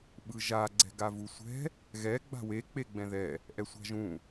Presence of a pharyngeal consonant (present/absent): absent